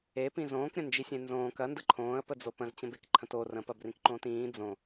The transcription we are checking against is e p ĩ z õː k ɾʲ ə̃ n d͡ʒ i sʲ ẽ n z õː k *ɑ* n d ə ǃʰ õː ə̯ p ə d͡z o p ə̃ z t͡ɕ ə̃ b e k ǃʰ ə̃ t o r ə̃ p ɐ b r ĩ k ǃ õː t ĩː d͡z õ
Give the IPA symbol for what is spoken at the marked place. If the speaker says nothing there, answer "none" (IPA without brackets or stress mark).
ɐ